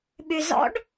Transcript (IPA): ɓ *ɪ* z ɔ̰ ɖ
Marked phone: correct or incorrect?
incorrect